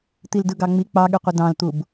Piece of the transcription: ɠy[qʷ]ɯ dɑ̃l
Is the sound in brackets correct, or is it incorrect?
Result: correct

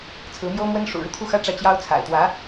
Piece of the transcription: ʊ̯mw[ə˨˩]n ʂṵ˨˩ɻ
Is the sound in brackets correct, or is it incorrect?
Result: incorrect: ə˥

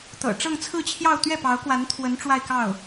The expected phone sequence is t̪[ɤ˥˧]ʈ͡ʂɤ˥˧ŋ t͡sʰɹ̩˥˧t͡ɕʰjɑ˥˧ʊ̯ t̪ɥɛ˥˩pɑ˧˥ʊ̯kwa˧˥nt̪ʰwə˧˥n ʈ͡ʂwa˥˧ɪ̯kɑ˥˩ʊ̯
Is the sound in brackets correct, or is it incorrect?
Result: incorrect: ɤ̰˨˩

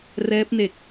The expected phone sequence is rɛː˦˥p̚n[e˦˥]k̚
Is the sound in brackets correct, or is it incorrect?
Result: incorrect: e˨˩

